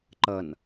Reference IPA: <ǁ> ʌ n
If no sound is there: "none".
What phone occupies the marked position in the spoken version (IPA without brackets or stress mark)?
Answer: ǃ